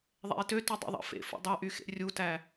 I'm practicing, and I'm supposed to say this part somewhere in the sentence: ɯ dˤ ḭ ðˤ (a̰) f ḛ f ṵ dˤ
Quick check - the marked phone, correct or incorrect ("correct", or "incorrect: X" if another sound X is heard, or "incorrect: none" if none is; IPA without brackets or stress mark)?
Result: incorrect: ɑ̰